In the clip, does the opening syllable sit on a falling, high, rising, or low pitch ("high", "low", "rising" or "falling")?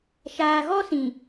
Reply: low